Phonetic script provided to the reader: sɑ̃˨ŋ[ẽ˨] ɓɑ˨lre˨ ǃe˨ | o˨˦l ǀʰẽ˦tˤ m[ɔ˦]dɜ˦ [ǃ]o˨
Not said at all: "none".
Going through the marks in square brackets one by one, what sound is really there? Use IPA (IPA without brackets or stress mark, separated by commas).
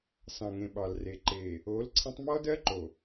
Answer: ẽ˨, ɔ˦, ǃ